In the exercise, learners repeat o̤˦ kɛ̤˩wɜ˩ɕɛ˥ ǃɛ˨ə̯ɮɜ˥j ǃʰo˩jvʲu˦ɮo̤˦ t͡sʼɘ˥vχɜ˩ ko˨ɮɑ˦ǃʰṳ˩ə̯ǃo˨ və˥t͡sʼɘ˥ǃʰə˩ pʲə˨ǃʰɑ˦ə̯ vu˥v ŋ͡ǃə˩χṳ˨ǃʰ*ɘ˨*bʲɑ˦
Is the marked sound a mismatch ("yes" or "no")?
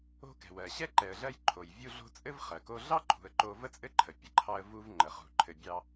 no